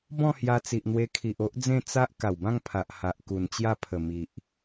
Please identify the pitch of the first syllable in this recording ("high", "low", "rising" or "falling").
falling